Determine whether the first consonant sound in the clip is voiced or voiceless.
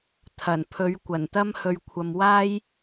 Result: voiceless